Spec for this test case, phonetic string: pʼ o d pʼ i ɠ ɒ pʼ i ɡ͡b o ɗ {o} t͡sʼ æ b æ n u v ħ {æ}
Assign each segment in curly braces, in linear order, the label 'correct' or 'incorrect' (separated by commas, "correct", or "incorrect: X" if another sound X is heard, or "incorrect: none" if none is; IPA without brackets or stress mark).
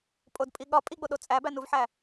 correct, correct